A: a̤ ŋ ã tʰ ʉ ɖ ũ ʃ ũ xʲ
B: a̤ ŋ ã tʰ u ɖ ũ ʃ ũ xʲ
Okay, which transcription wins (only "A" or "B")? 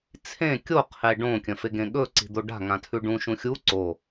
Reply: A